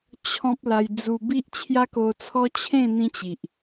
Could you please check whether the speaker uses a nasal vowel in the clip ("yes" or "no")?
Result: yes